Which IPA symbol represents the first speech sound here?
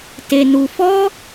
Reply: t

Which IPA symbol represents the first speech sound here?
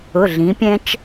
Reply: ʊ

